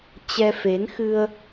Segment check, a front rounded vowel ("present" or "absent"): absent